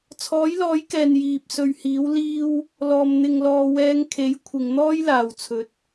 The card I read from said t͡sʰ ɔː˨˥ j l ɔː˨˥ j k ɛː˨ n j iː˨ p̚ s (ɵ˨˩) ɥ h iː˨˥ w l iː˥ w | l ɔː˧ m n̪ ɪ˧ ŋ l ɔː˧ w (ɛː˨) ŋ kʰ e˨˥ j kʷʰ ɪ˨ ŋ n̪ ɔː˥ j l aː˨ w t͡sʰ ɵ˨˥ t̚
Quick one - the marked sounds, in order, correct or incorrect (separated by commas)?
incorrect, incorrect